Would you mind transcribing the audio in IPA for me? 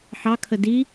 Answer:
ħɑkʰə di

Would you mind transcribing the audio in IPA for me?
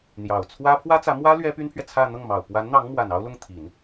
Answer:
n̪jɑ˨˩ʊ̯ t͡sʰwä˥ pʰwä˥t͡sä˧˥mwä˥ lɥɛ˥py˥npʰɥɛ˨t͡sʰä˥˧ n̪ɤ˥˩ŋmɑ˨˩ʊ̯ pwa˧˥nn̪ɑ˧˥ŋmwa˨˩n ɑ˥ʊ̯lʊ˥˩ŋ t̪ʰi˨˩˦n

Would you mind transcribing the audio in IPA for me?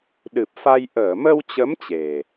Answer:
ɗɨ˨˩p̚fa˧j ʔəː˧˩mə˧wt͡ɕə˨˦m t͡ɕe˨˩

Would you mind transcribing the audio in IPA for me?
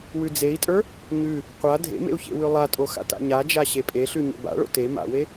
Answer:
wʉd͡zei̯tʼə˞ | ɲʉ | qʷa dʱḛmḛu̯ çḛwʉlˠatʼo xa̰ta̰ɲad͡ʒa ɕepʼeɬʉ ɲḛba̰ɭo̰ te ma̰we

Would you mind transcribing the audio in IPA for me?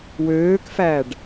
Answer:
wøːkfæɖ

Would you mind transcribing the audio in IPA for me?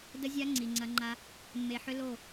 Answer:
də˦zʲa˦ ŋ͡ǀi˨ŋ͡ǀɐ˦ ŋ͡ǃa˦ | mːe˨ħʏ˦ lo˦˨

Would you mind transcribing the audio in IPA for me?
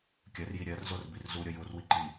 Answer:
kʲɜrji ɾʲɜrzorbir zuɾʲʌ jurwi ǃi

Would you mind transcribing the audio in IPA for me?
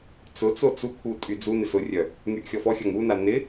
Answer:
t͡sʊt͡so t͡sukʰu tʼyd͡zunɪs ʊrʲœ | ŋyʔxʲɔfɔxʲɐŋ una nɪ

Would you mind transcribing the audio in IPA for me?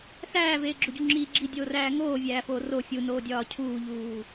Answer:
sæːveːɡ͡ǁoɟu ŋ͡ǁi ɡ͡ǁidʲoːræː ŋoːvʲæːfoː ro fʲunoːdʲɒː cʰuːʎuː

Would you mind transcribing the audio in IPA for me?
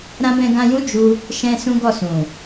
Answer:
ɾã˦ bɛ̃˧ɡã˧jũ˦ d͡ʒu˦ | ʃɛ̃˦sũ˦ɡɔ˦˨sũ˨

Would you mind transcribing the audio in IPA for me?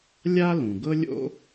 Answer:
lʲa˥ lũ˩ɡɤ˥lʲo̰˥

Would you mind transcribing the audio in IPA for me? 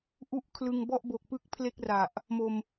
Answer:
ʔu˥˩ʔkʰlɯ˧ŋ bɔ˥˩ʔbo˨˩k̚pɯ˦˥k̚ pʰle˥˩k̚ra˨˩ʔ | mo˧m

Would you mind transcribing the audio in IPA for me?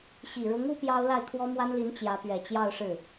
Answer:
ɕi˨˩ɻʊ˧˥ŋ u˥pjɑ˥ʊ̯ la˥˩ɪ̯kʰwɔ˥mwa˥nli˧˥n t͡ɕjä˧˥pɥɛ˨˩ t͡ɕjɑ˥˧ʊ̯ʂɻ̩˥˩

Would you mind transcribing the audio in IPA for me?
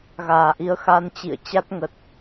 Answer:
ɣaː˧˩ʔi˨˦ə̯ xa˧nt͡ɕḭ˧˨ə̯ t͡ɕa˦˥t̚ ŋə˨˩t̚

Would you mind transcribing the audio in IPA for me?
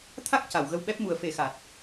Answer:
t̪ʰa˦˥k̚ca˨˩˨w ɣə˧wɓɛ˦˥p̚mu˨˩˦ə̯ fe˨˩˦xa˨˩t̚

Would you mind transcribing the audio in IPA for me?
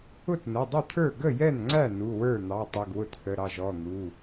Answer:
ʊ˥˩tnə˩˧˩dˤɪ˥˩t̪ʰə˞˥˩ ɡə˥˩jɛ˥˩nŋ͡ǀæ˥˩ nu˩˧˩wə˞˥˩n̪ɑ˩˧˩ tˤi˩˧˩ɡwʊ˥˩tθə˩˧˩ɾɑ˥˩ʒ ɔ˩˧˩n̪u˩˧˩

